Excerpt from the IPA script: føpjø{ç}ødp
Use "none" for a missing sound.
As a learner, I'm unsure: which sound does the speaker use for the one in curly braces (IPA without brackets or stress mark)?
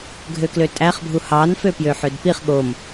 ħ